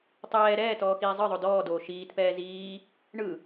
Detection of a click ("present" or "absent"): absent